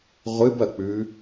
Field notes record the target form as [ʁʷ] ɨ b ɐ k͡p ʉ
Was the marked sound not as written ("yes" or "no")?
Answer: no